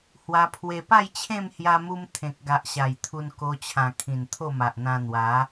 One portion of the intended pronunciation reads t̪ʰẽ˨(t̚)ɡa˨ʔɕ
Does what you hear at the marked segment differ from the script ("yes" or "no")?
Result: yes